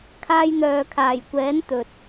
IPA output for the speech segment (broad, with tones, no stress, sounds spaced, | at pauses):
kʰ aː˧ j n̪ œː˨ kʰ aː˨˩ j kʷ ɛː˨˥ n t̪ ɵ˨ t̚